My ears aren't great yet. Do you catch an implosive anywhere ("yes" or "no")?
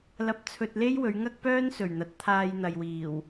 no